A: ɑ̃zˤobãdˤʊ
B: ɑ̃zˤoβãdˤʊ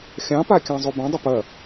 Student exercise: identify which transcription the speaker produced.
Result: A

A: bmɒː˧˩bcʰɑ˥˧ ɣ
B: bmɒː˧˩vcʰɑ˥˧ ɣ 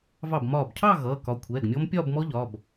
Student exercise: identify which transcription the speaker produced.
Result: A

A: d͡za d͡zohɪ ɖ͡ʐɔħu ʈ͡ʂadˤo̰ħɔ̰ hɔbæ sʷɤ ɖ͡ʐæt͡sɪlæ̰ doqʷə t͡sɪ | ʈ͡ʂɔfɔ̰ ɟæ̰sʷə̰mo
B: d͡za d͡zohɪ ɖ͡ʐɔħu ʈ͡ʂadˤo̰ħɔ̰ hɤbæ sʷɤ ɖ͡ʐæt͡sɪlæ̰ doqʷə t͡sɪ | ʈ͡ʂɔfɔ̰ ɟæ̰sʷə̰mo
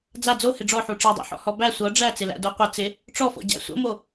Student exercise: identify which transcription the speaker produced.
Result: A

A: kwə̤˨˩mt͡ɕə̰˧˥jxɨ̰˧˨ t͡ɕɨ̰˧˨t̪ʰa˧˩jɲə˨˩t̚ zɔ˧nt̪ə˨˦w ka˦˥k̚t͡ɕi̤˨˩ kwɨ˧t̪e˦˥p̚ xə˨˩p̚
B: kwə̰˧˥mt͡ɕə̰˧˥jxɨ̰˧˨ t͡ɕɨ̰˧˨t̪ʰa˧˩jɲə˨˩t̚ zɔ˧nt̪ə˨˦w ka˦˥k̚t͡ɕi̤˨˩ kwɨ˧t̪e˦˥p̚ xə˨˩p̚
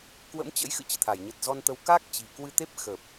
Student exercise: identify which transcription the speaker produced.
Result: B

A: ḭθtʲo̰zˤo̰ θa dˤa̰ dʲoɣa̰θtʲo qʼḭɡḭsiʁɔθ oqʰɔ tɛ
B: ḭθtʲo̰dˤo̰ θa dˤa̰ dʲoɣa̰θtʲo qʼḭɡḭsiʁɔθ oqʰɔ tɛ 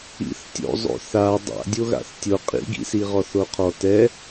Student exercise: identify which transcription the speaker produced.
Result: A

